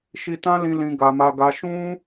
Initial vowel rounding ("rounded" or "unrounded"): unrounded